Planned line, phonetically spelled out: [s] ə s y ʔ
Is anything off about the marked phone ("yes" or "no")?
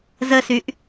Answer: yes